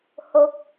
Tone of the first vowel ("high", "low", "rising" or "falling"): low